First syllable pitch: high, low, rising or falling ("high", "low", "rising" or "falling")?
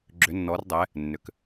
rising